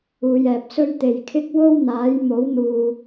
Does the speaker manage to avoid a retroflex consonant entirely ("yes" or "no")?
yes